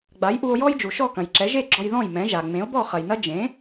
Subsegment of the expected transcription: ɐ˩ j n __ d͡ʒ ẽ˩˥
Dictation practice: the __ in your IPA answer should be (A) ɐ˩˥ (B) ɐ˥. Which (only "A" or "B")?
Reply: B